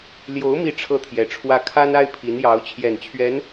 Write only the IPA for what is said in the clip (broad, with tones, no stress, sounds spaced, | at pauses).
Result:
l j o˧˥ ʊ̯ m i˥˧ ʈ͡ʂʰ ɤ˥˩ t̪ʰ j ɛ˧˥ ʈ͡ʂʰ w ä˥ kʰ a˥ n a˥ ɪ̯ pʰ i˧˥ n j ɑ˧˥ ʊ̯ t͡ɕʰ j ɛ˨˩ n t͡ɕʰ ɥ ɛ˧˥ n